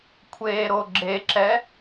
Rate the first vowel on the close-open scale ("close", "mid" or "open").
mid